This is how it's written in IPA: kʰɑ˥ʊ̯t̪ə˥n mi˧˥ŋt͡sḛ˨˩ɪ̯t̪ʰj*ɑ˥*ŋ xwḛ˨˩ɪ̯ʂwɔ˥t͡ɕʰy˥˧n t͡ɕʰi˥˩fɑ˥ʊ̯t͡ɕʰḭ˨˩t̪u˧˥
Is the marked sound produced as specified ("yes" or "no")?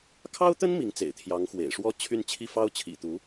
no